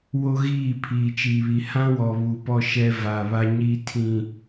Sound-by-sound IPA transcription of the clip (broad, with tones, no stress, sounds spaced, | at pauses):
w o˦ ɣ iː˦˨ pʰ iː˨ t͡ʃ iː˨ β i˨ h ã˦ w ɔ˨ β u˨ p ɔ˦ ʃ ɛ˦ v aː˨ β a˦ ɲ iː˦ tʰ ĩ˨